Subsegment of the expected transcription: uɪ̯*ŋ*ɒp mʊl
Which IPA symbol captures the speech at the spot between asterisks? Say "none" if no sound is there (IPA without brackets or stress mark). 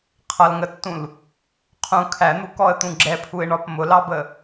ɳ